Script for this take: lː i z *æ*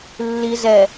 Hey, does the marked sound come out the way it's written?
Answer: no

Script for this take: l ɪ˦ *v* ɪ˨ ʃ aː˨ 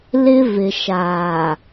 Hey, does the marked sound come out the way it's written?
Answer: yes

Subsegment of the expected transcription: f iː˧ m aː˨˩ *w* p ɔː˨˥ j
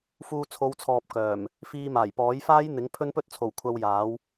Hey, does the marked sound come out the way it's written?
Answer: no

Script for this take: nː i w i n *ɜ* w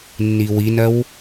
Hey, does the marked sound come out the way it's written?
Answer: yes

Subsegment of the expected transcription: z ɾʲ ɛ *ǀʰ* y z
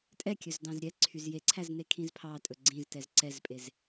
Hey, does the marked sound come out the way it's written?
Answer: yes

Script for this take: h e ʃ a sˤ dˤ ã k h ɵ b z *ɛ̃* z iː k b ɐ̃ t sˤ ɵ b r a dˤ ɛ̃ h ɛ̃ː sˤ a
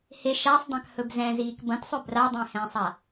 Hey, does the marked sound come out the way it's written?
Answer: yes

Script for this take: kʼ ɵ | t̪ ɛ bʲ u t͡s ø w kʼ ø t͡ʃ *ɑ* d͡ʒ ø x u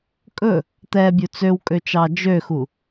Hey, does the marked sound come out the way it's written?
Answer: yes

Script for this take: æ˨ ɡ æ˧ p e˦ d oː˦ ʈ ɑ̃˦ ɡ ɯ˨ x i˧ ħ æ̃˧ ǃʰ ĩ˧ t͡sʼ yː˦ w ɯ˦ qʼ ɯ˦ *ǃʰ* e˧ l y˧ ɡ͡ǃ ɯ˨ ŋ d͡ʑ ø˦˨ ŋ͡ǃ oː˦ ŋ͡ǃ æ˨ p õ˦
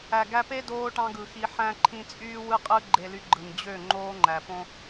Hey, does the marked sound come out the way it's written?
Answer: no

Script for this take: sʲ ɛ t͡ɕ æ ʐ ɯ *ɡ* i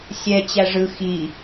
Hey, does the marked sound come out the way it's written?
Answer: no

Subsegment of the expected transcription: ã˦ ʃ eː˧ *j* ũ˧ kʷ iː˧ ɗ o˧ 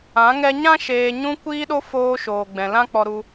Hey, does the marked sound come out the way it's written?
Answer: no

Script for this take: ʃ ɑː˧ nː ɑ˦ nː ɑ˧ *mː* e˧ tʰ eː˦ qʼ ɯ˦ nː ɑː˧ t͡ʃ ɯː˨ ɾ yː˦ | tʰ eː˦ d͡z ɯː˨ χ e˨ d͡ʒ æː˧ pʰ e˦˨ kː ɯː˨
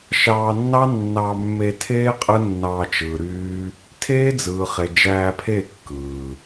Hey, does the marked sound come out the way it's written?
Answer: yes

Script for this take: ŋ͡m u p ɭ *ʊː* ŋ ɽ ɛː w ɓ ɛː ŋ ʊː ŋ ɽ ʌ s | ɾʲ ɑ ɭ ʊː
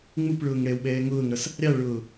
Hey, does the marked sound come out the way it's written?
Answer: yes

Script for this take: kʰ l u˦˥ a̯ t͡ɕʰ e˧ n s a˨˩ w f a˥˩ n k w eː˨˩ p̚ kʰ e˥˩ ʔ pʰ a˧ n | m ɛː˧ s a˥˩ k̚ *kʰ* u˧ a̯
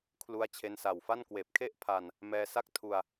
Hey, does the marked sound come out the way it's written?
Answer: no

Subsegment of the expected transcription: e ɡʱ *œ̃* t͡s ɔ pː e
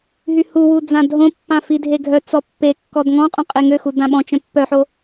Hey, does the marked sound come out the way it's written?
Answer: no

